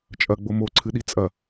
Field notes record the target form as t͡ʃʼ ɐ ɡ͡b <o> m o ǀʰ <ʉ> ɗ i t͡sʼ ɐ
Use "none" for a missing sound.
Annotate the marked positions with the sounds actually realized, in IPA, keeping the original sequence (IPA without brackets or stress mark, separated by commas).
o, ɨ